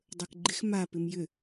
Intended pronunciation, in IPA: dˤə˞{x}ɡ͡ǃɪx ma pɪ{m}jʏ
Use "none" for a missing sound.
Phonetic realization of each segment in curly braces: k, m

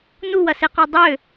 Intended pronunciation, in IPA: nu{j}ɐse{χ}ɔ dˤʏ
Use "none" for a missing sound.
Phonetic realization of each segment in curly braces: w, q

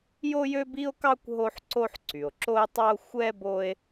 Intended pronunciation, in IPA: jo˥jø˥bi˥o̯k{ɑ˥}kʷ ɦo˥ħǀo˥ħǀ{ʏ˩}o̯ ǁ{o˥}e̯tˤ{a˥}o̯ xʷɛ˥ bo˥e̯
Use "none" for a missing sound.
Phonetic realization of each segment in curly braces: ɑ˥, y˩, o˥, ɑ˥

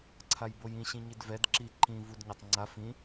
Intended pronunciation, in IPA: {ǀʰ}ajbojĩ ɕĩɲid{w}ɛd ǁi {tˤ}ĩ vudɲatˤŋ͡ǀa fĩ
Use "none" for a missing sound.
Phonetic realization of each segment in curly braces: ǀʰ, v, ǃ

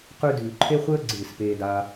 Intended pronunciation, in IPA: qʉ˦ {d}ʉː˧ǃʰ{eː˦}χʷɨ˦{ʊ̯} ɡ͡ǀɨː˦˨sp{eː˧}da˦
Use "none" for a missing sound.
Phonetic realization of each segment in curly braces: d, e˦, ə̯, eː˦

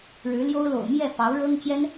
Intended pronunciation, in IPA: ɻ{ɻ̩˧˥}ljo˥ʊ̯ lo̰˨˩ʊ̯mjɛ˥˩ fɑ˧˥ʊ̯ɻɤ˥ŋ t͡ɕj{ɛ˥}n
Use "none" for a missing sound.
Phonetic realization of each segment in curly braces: ɻ̩˧˥, ɛ˥

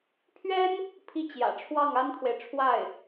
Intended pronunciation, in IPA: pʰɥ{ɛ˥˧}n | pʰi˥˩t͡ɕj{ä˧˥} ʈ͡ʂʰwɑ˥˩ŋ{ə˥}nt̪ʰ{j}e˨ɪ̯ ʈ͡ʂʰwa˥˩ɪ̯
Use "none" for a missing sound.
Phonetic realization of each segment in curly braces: ɛ˥, ä̰˨˩, a˥, w

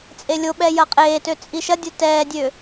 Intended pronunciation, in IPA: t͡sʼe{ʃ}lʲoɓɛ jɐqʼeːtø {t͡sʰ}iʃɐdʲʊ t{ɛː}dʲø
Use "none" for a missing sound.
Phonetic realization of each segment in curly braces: none, t͡sʼ, ɛː

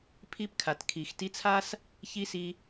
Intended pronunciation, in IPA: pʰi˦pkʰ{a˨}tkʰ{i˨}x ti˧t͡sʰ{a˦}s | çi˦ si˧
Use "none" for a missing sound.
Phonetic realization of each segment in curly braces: a˨, i˨, a˦

